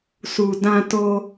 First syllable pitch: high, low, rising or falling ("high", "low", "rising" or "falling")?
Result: low